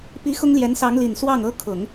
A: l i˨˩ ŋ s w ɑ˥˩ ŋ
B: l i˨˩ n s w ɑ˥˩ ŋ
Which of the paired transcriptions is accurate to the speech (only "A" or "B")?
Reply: B